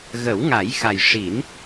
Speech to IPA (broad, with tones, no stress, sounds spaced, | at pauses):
ɣ ə˨˩˦ w ŋ a˨˩˦ j x a˨˩ j ʂ i˨˩˦ n